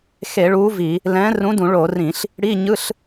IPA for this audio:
x e˧˩˧ ɭ uː˨˥ v i˧˩˧ | l ɛ̃ː˨˥ r ũ˨˥ d ũ˧˩˧ ɭ o˧˩˧ r ĩ˧˩˧ ɬ | ɽ i˧˥˧ ɲ ɯ˧˥˧ ɬ

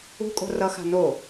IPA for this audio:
ṳ kʼ o̤ r ʌ x a̤ n o

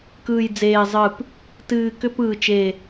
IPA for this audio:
k ɯː˨˩ j d͡z eː˨˩ zˤ ɨ˨˩ p | t ɨː˨˩ k ʏ˧˩˧ p ɯː˨˩ t͡ʃ e˨˩

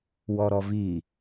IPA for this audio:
w ɔ ɾ ɔ v i

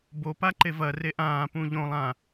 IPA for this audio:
b o p a ǃ e v ɐ r e ʔ ãː p ũ ʎ õ lˠ ã

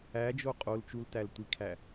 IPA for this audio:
æ d͡ʒ o qʼ o l t͡ʃ u l t æ l tʷ i kʰ æ

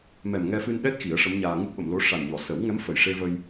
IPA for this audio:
m ɛ˨˩ m ŋ ɛ˧ f ɨ˧ n ɗ ɛ˦˥ t̚ x i˨˩˦ ə̯ ʂ ə˧˥ m ɲ aː˧ ŋ ɨ˦˥ k̚ ɓ ə˨˩˨ m l o˧˥ ʂ a˨˩ n ɲ ɔ˨˩˨ s ə˨˩˦ w ŋ ɛ˧˥ m f ə˨˩ j ʂ e˧ v ə˧ j

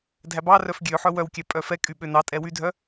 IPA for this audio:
dʱ æ b ɑ r œ f ɡʲ ø ħ œ w œ w kʲ æ pʼ œ f ɛ kʼ y ɓ ø n ɑ tʼ ɛ w y dʱ œ

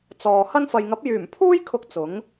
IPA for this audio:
t͡s ɔː˨ h ɐ˥ n f ɐ˨ j ŋ ɐ˨˥ p̚ j yː˨˩ m pʰ uː˥ j kʰ ʊ˧ k̚ t͡s ʊ˨˥ ŋ

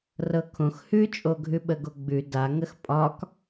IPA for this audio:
r ɤ kʰ õ x h ʉ t͡ʃʼ o ɡʱ ʉ ɓ ə ɡ o ɡ͡b ʉ d a ŋ ə x pʼ ɒ k

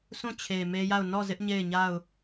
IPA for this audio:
s ũ˦˨ t͡ɕʰ e˨ m e˦ j a˦˨ ʊ̯ n ɔ˦˨ z ɪ˦ ʔ ɲ e˦˨ ɪ̯ ɲ a˦˨ ʊ̯

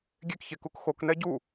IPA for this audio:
ɡʲ e k ç e k u k x o k n ɛ ɟ u

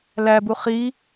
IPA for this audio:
l æ b u χ i

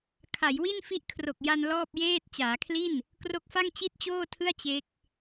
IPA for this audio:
kʰ a˩˦ j w i˥˩ n f i˦˥ ʔ kʰ r o˨˩ k̚ j a˧ n l ɔː˥˩ p̚ j eː˥˩ t̚ t͡ɕ aː˩˦ kʰ l i˥˩ n | k r o˦˥ k̚ f a˥˩ ŋ t͡ɕ i˥˩ t̚ t͡ɕ oː˥˩ tʰ ɯ˥˩ a̯ t͡ɕ e˦˥ k̚

